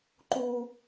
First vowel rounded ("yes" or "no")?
yes